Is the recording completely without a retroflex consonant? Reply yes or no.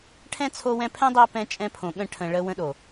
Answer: no